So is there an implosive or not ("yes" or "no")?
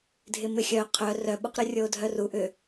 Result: yes